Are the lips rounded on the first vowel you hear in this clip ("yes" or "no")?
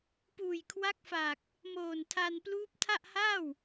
yes